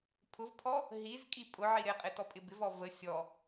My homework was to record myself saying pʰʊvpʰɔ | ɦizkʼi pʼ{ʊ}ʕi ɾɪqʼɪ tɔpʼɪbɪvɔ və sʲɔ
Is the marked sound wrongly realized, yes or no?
no